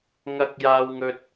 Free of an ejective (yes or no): yes